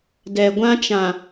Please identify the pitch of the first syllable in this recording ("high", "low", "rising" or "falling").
low